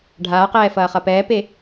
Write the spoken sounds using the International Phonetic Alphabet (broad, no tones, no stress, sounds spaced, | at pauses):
ɖʱ aː q ɛː f ɐː χ ɐ p ɛː p e